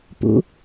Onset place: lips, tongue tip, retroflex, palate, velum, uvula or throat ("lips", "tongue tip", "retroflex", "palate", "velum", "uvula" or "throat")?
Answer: lips